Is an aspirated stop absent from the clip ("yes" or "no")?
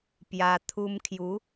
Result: no